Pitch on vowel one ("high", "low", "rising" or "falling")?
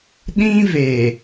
high